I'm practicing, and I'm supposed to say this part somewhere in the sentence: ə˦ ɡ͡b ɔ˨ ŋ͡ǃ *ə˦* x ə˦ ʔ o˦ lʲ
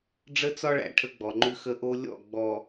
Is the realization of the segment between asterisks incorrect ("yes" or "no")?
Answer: yes